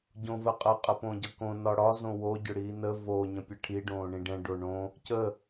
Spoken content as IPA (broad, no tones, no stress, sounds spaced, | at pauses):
ɟ õ v ə qʼ ə qʼ ə p õ ɟ ʌ k õ n ɒ ɽ ɒ z õ w o ɟ ʏ ɽ iː n ə v o ɲ ə̃ pʲ ə ʈʰ i ɖ õː ɳ ĩ ɖ ɛ̃ ɖ o ɳ õ | c ə